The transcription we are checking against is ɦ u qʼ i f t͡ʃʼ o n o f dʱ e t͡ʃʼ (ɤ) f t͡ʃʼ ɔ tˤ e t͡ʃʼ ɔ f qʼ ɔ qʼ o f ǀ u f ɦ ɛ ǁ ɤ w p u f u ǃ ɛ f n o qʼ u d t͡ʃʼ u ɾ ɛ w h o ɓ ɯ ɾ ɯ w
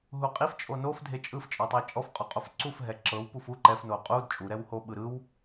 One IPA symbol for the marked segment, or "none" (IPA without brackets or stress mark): ɯ